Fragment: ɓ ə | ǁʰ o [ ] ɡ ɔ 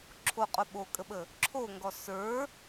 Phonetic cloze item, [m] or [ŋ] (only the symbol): ŋ